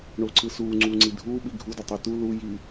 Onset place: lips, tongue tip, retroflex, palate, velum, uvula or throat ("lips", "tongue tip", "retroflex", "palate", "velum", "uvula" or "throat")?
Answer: retroflex